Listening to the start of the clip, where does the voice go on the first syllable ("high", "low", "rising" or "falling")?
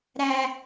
high